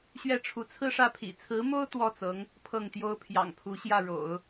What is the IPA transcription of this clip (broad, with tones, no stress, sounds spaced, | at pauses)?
ɕ ɥ ɛ˥˩ ʈ͡ʂʰ u˧˥ t͡sʰ ɹ̩˥˧ ʂ ä˥˩ pʰ ḭ˨˩ t͡sʰ ɹ̩˧˥ m o˥ ʊ̯ t̪ w ɔ˥˩ t͡s ɤ˧˥ ŋ | pʰ ɤ˥˩ ŋ t̪ j o˥ ʊ̯ pʰ j ɑ̰˨˩ ŋ pʰ u˧˥ ɕ j ä˥˩ ɻ o̰˨˩˦ ʊ̯